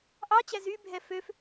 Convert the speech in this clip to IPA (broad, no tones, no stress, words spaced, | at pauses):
ʔɑt͡ɕæ zybʱɛ føf